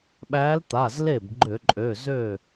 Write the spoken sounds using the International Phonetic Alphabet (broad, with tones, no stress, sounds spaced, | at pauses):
ɓ æ˧˥ l t̪ a˩˧˩ z l e˥˩ b ɡ͡ǃ ø˧˩˧ ǃʼ ø˩˧˩ z ø˥˩